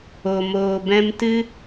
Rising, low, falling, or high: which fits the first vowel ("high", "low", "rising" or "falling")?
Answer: low